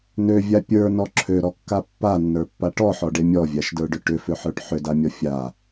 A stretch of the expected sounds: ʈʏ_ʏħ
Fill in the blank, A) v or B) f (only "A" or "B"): B